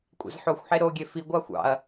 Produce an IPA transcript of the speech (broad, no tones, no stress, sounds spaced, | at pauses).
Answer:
kʷʼ ḛ z ħ o xʷ ħ e ɾ o ɡʲ e f i ɡʷ ɑ xʷ ɑ̰ ɐ̯